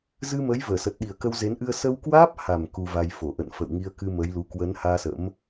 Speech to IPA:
z ɨ˧ m əː˨˦ j v əː˧˩ s ə˨˩ t̚ ɗ i˨˩ ə̯ k ə˧ w z e˨˦ n ʔ ɨ˧ ə̯ s ə˧ w k w aː˦˥ p̚ h a˨˩ m k u˧ v a˧ j f o˧˩ ʔ ə̰˧˨ n f ə̰˧˨ w ŋ i˧ ə̯ k ɨ˧ m ə˨˦ j l u˨˦ k w ə˨˦ n h aː˧ s ə̰˧˥ m

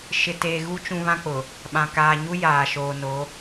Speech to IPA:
ʃ ɪ˨ t eː˨ ɣ u˦ t͡ʃ ũ˨ β ã˦ k͡p ʊ˨ | ɓ ã˨ k aː˨ ɲ u˦ j aː˨ ʃ oː˨ n o˨˦

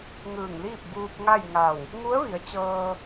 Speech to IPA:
ŋ ɯː˧˩ ŋ l iː˥˨ p̚ b uː˧ p̚ ŋ a˥˨ j ŋ a˧˩ w | ŋ u˧˥ ə̯ ʋ i˩˧ ə̯ t͡ɕ ɤː˧

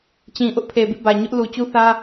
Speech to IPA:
t͡ɕ ĩ˨ ʔ ʊ˦ ʔ pʰ e˨ b ḭ˦˨ b ä˨ ɲ ʊ˦ ʔ l u˨ t͡ɕ u˦ θ ä˦

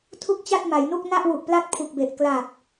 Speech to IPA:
tʰ u˥˩ k̚ t͡ɕ a˥˩ t̚ m a˩˦ j n u˥˩ k̚ n a˥˩ ʔ w u˨˩ ʔ p l a˥˩ t̚ pʰ u˨˩ k̚ b e˨˩ ʔ k l a˨˩ p̚

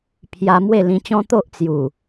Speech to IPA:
pʰ j a˧ m w e˥˧ l ĩ˧ t͡ɕ ɔ̃˦ t̪ o˦ ʔ t͡s j u˨˩

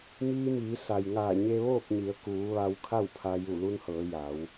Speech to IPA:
m iː˧ m iː˩˧ s a˩ j ŋ aː˧˩ ɲ e˧ ʋ oː˥˨ k̚ ɲ i˩˧ ə̯ k uː˩˧ ʋ a˧ w kʰ a˥˨ w pʰ a˧ j u˧˩ l u˧ n h ɤː˩˧ j a˩˧ w

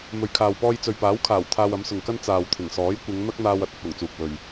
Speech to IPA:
m ɵ˨ ɥ kʰ aː˨ w p ɔː˧ j t͡s ɵ˨ ɥ p aː˨˥ w kʰ aː˨˩ w t̪ʰ aː˧ w ɐ˨˥ m s ʊ˨ ŋ k ɐ˥ n t͡s aː˨ w t̪ʰ ɪ˨˩ ŋ s ɔː˨˥ j kʷ ɪ˨˧ ŋ n̪ ɐ˥ k̚ n̪ aː˧ w ɐ˥ t̚ ɐ˧ t̚ w ʊ˨˩ ŋ t͡s uː˨ k̚ w ɵ˨ ɥ

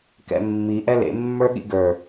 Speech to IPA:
k ɛ̰ mː i ʔ ɛ l ḛ mː ə˞ ɠ ḭ ɡ ə˞

